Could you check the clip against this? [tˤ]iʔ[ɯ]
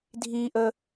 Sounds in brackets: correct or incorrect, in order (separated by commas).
incorrect, incorrect